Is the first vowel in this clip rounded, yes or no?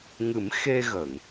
no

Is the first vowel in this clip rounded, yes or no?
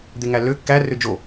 no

